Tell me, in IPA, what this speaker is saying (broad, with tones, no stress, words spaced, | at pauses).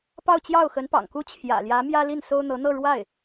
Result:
pɑ˥˧ʊ̯t͡ɕjɑ˥˩ʊ̯ xə˧˥n pɑ̰˨˩ŋku˥˩ t͡ɕʰjä̰˨˩ljä˧˥mjä˥ li˥˩nso˥ʊ̯n̪ɤ˧˥ n̪ɤ˥˧ ɻwa˥˩ɪ̯